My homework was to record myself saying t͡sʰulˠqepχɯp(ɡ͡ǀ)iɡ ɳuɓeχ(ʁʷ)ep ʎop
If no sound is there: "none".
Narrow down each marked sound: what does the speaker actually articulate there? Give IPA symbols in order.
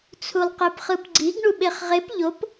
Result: ɡ͡ǀ, ʁ

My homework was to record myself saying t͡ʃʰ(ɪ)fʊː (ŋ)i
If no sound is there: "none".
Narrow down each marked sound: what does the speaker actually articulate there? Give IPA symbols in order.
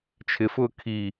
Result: ɪ, kʰ

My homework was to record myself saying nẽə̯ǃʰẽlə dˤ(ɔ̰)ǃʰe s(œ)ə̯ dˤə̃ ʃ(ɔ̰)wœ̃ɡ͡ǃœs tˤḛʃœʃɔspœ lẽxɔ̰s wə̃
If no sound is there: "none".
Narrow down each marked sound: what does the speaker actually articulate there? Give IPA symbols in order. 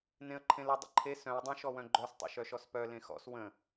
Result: ə̰, œ̃, ɔ

